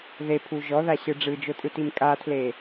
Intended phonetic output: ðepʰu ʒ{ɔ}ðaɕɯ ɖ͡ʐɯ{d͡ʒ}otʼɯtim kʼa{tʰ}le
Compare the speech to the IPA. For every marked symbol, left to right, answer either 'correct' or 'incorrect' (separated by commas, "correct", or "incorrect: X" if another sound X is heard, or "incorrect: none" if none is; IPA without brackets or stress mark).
correct, correct, correct